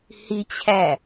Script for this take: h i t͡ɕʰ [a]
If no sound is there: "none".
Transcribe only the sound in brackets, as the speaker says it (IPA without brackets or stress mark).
æ